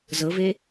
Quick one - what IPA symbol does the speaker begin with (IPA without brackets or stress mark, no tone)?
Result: z